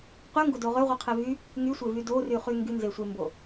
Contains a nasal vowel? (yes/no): no